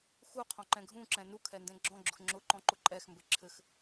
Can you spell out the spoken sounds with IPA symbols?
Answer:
xu qʰɔ̃ǃɛ̃ɡʱũǁɛ̃ nukʰɛ ndɛ̃ɡ͡ǁɔ̃ɡ͡ǁʊx ŋ͡ǁʊǃɔ̃ ǃʊǃʼɛxmbɘ ǁʰɘx

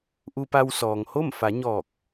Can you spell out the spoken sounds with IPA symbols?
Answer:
ʔu˧pa˧wsɔː˩ŋho˥˨m fa˩˧ɲɔː˧˩k̚

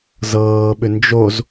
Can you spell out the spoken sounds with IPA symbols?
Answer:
zɤːɓʏ nd͡ʒoz

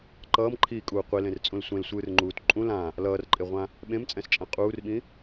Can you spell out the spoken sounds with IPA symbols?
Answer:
ǃʌːmǃʰiːkʼuː qʷilẽrt͡sʼũl sʷẽlsʷɯːrŋ͡ǃuːt ǃʼũ lã | lʌːrǃʼeʁʷã | ɓẽmt͡sʼɛ̃st͡ʃʼã qʼuːrɓĩ

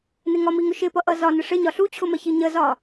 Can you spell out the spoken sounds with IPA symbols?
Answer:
nɪŋɒmi ŋʊʃɪpʌ ʔʌzɒnɪ ʂɪ ɲɒɬut͡ɕʰʊmɜ çiɲəzɒ

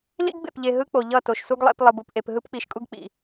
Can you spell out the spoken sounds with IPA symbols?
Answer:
lḭ˦ɡbḛ˨pʎe˨ ɦɯ˦k͡po˨ ʎʌ˦˨to˨ʃsu˦ɡlˠḛ˨˦p lˠɯ˨bu˨pʔe˨p ɦɯ˦pk͡pi˨˦ʃkʼu˦ɡ k͡pḭ˨

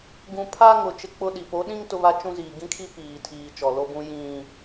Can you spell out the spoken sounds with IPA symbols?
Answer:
ɡũ˨pʰa˦ ŋʊ˨ t͡ʃɪ˦k͡pʊ˦ɗi˨ po˨˦ɗĩ˦ŋ tʊ˦βa˦t͡ʃũ˦ziː˨ ɡĩ˦kʰi˦ piː˨tʰiː˨ t͡ʃɔ˨lo˦bũ˦ jĩ˦

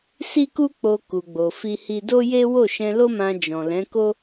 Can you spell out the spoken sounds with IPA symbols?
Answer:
si˦ku˦k͡po˧ ku˧ɡ͡bo˧fi˦hi˦ do˦je˦ wo˦˨ʃɛ̃˧lo˦mã˧ d͡ʒɔ̃˨lɛ̃˨˦ko˦

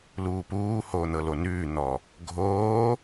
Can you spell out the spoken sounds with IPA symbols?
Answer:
luːpuːhoː n̪ɤlonʉːn̪ɔ | ɡʱoː

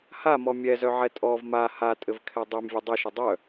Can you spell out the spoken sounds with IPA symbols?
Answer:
hamɔ mʲɛzœʕɛ tʼɔv ma hatʼɘvkʰɛ dˤømvʲɘ dˤɘʃɘ dˤœ

